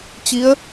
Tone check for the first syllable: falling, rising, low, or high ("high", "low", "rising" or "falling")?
rising